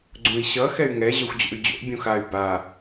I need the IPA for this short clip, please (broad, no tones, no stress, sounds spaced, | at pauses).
ɡ͡ǀ ũ i̯ ɕ ʌ x ɛ y̯ ŋ ɛ ʑ œ xʷ d͡ʑ o̰ y̯ d͡ʑ o̰ bʲ ũ x a y̯ b a